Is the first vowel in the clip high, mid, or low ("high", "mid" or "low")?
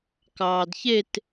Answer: low